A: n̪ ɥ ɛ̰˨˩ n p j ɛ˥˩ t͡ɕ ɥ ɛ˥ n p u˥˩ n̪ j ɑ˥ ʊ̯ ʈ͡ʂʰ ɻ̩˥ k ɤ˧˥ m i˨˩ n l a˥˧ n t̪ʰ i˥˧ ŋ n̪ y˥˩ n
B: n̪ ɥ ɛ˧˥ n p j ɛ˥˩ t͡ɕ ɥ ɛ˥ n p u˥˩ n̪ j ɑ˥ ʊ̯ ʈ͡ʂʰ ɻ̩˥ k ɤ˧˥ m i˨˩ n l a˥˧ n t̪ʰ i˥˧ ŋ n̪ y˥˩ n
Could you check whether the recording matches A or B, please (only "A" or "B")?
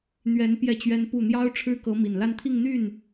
B